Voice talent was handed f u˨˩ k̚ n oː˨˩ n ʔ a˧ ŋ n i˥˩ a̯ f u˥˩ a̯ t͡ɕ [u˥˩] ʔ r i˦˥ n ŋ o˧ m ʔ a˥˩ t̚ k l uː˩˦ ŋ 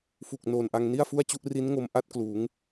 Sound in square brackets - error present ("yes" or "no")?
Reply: no